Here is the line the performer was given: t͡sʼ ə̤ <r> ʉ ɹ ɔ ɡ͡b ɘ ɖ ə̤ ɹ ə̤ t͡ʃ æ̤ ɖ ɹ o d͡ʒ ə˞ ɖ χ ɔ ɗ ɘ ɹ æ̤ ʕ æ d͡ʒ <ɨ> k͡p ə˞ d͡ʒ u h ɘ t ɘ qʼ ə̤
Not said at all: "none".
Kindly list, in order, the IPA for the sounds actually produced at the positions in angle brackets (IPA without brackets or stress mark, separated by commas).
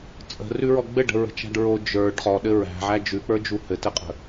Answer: r, ʉ